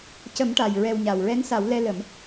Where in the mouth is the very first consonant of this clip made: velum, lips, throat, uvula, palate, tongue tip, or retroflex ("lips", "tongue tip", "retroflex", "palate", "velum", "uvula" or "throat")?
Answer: palate